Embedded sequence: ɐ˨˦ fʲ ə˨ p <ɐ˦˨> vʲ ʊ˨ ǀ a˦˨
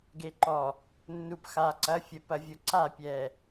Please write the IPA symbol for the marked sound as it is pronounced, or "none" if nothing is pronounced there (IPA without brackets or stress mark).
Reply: ɐ˨